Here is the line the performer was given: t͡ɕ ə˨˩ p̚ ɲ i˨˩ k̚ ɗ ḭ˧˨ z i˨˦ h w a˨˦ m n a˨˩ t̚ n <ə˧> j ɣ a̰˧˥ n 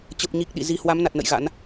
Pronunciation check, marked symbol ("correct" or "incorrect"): incorrect